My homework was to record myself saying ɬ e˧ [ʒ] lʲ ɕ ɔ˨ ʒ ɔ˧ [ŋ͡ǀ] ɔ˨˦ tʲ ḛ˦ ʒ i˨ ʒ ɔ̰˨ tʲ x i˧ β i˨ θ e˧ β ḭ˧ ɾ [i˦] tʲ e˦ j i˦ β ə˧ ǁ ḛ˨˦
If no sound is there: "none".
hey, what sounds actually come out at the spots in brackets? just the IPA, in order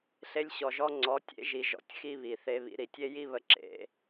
none, ŋ͡ǀ, i˨

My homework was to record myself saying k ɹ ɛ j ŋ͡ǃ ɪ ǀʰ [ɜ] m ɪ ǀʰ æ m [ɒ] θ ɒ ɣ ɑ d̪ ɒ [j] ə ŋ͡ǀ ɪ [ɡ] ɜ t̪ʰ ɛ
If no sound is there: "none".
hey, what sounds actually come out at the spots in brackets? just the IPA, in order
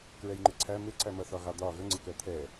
æ, ʌ, ɣ, k

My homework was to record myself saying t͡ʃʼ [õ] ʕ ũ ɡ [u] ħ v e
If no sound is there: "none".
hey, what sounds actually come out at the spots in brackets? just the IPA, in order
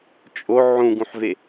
o, ũ

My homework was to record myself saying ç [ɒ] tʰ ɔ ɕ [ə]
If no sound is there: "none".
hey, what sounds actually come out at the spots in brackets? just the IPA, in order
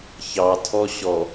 ɑ, ɔ

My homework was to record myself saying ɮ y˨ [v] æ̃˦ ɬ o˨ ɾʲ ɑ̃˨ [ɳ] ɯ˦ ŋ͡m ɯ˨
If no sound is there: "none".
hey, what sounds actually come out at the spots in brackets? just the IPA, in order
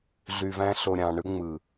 v, ɳ

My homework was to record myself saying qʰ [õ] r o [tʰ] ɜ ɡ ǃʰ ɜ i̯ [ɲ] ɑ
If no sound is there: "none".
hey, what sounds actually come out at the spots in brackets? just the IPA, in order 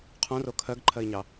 õ, kʰ, ɲ

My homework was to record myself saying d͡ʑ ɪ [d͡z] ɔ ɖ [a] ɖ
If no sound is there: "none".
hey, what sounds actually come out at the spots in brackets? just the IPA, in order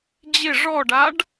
ʐ, a

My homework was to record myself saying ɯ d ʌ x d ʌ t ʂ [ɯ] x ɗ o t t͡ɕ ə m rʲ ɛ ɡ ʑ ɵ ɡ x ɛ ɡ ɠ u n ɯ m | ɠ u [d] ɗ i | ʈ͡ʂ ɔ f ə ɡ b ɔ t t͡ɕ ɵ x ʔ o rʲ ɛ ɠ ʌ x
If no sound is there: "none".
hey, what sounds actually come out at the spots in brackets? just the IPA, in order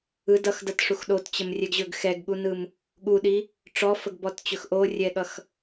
u, none

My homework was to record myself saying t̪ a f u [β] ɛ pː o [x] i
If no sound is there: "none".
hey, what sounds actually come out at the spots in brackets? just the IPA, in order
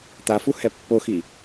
h, x

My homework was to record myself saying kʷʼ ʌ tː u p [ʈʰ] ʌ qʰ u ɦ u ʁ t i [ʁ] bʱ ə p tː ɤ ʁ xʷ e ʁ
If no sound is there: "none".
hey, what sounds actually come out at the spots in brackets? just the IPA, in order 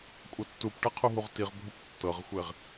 ʈ, ʁ

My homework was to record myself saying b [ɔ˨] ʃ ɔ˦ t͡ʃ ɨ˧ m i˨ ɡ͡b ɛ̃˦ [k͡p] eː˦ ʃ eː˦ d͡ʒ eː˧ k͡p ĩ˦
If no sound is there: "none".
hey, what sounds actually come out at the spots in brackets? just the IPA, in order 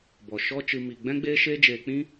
ɔ˨, ɡ͡b

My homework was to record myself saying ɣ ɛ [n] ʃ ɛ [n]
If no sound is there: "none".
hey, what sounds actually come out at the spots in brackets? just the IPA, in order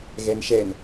n, n

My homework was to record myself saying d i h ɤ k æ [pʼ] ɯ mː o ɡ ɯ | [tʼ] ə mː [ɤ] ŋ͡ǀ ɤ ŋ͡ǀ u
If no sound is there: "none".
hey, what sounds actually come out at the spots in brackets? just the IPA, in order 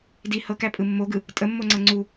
pʼ, tʼ, o

